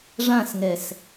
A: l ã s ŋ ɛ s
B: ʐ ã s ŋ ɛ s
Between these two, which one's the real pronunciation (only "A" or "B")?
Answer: B